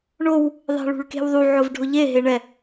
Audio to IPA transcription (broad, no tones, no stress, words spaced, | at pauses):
ɳow | ðˤɛ̤ɭṳɭke̤wðˤu ʕʊvɖʱʊʎe ɦeɳɛ